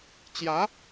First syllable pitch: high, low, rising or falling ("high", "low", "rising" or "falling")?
rising